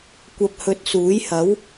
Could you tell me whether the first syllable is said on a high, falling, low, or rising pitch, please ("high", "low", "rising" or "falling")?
low